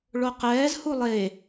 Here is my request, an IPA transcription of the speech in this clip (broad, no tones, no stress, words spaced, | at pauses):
ɭoqɛːz hulˠe